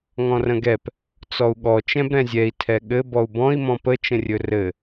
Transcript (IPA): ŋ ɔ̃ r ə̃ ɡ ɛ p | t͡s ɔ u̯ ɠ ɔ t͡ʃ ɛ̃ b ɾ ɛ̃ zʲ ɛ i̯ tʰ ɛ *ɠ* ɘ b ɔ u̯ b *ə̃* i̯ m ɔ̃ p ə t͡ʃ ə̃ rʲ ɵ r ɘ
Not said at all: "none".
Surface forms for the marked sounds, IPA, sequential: ɠ, ɔ̃

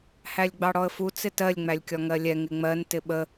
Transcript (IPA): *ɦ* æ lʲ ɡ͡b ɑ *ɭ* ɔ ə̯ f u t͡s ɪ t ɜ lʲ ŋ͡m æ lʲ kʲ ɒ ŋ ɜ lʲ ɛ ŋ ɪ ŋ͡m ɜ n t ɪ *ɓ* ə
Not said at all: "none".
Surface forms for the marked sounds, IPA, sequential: h, ɽ, ɓ

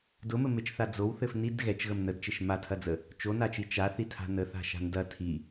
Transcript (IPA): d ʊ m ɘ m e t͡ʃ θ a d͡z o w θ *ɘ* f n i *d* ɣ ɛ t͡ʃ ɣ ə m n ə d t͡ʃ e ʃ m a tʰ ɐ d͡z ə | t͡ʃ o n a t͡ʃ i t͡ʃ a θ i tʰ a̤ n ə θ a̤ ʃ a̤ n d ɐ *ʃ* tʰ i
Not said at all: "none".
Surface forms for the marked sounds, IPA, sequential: ɘ, d, none

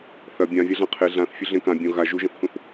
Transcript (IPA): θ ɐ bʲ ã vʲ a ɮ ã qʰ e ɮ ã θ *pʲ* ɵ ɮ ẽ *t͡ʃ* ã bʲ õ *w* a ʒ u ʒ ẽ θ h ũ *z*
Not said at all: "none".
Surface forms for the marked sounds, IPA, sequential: fʲ, k, ɣ, θ

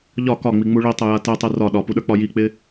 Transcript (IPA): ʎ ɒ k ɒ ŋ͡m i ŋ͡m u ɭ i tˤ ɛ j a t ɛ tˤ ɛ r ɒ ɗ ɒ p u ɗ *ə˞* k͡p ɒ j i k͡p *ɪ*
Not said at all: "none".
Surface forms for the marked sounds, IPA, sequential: ə˞, ɪ

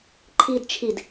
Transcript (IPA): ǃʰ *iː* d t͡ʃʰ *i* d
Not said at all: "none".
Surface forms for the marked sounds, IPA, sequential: iː, i

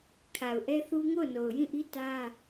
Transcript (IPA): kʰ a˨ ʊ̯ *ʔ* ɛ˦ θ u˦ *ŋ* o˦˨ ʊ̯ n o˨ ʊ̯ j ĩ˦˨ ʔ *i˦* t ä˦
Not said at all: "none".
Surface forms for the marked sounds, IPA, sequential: ʔ, ŋ, i˦

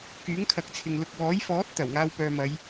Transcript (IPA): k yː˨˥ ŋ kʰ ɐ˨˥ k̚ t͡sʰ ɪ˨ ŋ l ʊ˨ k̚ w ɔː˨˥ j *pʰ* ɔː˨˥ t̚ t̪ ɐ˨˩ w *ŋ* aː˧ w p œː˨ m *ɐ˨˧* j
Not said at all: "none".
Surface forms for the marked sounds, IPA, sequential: f, ŋ, ɐ˨˧

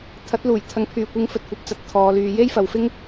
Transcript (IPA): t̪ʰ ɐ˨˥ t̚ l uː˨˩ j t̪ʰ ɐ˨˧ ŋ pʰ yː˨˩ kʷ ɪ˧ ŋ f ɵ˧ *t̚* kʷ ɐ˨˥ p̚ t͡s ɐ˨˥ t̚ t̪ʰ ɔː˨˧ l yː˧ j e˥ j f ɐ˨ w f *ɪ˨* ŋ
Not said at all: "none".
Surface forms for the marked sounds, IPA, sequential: t̚, ɪ˥

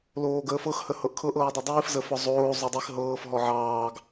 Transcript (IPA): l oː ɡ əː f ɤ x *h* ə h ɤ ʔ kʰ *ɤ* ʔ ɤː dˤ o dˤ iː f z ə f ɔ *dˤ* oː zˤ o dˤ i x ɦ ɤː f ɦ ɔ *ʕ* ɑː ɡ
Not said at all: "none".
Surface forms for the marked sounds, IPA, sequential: h, ɤ, zˤ, ʕ

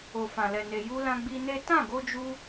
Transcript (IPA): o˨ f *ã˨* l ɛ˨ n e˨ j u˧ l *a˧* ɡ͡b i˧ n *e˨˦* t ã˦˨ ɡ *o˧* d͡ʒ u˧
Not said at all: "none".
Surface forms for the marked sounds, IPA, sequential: ã˨, ã˧, e˦, o˧

